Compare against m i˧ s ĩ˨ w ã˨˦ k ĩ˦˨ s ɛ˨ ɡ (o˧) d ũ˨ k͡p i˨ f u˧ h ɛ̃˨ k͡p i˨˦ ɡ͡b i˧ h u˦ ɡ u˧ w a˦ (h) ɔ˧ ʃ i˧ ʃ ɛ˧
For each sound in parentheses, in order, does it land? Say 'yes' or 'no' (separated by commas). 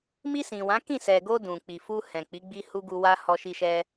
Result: yes, yes